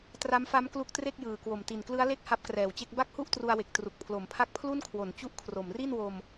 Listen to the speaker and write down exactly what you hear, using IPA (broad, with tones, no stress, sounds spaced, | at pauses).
t r a˦˥ m f a˦˥ m k l u˦˥ k̚ t r e˥˩ k̚ j ɯː˨˩ k w o˨˩ m t i˨˩ n k l ɯ˦˥ a̯ l e˦˥ k̚ h a˦˥ p̚ k r ɛː˨˩ w t͡ɕ e˥˩ k̚ b a˥˩ k̚ h u˥˩ ʔ t r u˧ a̯ w e˨˩ k̚ t r u˨˩ k̚ pʰ l o˩˦ m pʰ a˦˥ k̚ pʰ l u˥˩ n kʰ w o˩˦ n t͡ɕ u˥˩ ʔ kʰ r o˨˩ m r i˥˩ n w o˧ m